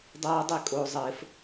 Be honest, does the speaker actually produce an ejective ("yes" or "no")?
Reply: yes